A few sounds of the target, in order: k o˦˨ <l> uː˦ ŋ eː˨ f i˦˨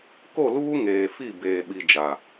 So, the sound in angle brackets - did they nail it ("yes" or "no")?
yes